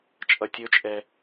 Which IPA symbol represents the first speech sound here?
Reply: t͡ʃʼ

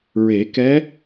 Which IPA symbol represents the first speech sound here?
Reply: ɹ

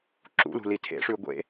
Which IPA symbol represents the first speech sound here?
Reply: ǁ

